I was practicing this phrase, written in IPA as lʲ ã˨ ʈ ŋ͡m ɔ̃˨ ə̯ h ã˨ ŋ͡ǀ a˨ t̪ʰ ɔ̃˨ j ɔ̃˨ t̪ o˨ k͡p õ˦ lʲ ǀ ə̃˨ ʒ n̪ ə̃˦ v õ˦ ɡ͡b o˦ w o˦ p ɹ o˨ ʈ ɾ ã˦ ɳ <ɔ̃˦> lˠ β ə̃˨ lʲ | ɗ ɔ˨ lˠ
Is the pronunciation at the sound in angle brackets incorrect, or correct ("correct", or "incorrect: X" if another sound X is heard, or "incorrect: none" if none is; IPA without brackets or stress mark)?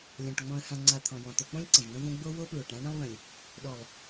incorrect: ə̃˦